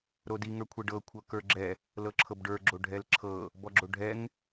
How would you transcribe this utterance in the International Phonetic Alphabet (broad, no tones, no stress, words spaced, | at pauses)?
ɾodi ŋə˞kʷʰɛɖɤ kʷʰɤkə˞ɡ͡ǁɛ | lɤǁʰɤbɖə˞ ɡ͡ǁoɖʱɛlǁʰɤ | bɔɡ͡ǁoɖʱɛŋ